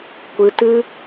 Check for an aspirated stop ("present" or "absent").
absent